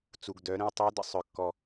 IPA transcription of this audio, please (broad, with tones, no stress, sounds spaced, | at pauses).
t͡s u˩ ɡ d œ˩˧ ɾ ə̃˧ w tˤ œ˧˥ d ə̰˩ sˤ œ˩˧ kː ɔ˩